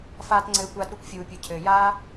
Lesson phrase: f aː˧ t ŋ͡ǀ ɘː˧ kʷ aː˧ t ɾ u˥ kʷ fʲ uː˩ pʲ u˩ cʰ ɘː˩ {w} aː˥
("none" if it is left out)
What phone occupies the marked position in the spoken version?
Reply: j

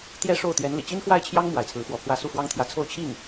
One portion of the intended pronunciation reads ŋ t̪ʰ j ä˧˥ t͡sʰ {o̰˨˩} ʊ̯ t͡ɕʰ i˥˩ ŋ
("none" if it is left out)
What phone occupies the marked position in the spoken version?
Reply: o˥˧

